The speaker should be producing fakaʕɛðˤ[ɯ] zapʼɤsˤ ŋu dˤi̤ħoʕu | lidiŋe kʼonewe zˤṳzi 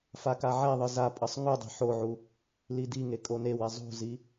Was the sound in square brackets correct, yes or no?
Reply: yes